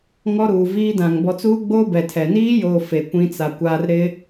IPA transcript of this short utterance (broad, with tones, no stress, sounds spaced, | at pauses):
ŋ ɔ˦ ɾ uː˨ v iː˦ d ã˨ ŋ b ɔ˨ t͡s uː˦ ɡ͡b oː˦ b ɛ˨ tʰ ɛ˨ n iː˦ j oː˨ f e˨ kʷ ĩ˦ t͡s a˨ kʷ aː˦ r ɾ ɪ˦